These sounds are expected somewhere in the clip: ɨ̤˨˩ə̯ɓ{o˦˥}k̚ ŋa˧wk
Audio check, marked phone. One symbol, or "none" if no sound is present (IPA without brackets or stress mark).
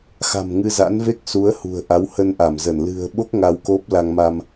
o˦˥